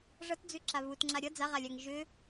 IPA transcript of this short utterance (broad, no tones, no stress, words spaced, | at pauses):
ʐʌtd͡zʉǁa βutŋ͡ǁa ɾʲʌ d͡zaʁalʲaŋ ʒʏ